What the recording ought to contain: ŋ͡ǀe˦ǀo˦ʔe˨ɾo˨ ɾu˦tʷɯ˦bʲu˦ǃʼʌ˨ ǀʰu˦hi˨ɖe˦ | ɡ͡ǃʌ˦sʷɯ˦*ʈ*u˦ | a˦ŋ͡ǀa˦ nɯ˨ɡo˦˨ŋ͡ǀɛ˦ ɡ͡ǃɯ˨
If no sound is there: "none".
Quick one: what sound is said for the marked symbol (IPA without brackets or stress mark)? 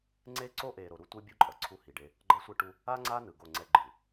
ʈ